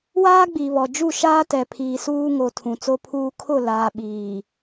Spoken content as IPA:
w aː˦ ɡ͡b i˨ β ɔ˨ d͡ʒ u˦˨ ʃ aː˦ t ɛ˨ pʰ iː˨ s uː˦ ŋ o˨ tʰ ũ˨ t͡s o˦ pʰ uː˦ kʰ ʊ˦˨ l aː˨ ɓ iː˨

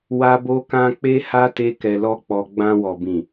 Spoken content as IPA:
w a˦ b o˦ k ã˦ k͡p e˦ h a˦ t e˦ k ɛ˧ l ɔ˦ k͡p ɔ˧ ɡ͡b ã˧ w ɔ˨ b ĩ˨

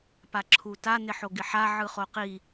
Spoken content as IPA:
p a ǁʰ u t a n ɪ ħ o ɡ ɪ ħ a ʕ ɯ χ o q i

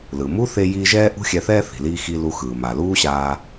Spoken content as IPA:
l ɯ˩ m u˥ θ e˧ j iː˧ ʒ ɛː˥ ʔ ṳ˥ xʲ ɛ˧ θ ɛː˥ θ i̤˩ l iː˧ x i˧ l u˧ x ɯː˩ m a˩ l uː˥ ɕ aː˧

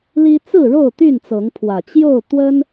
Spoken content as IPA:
l i˦ t͡s ɹ̩˥˨ ɻ o˥˨ ʊ̯ t̪ y˥˨ n t͡s ɤ˨˦ ŋ pʰ w ä˨˩ t͡ɕ j o˥˨ ʊ̯ t̪ w ə˦ n

